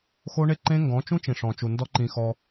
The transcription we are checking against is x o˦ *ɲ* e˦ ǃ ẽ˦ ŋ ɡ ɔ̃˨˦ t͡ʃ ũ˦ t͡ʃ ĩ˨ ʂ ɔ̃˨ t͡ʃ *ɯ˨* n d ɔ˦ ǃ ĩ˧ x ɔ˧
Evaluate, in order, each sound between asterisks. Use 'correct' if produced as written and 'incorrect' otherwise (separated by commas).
incorrect, incorrect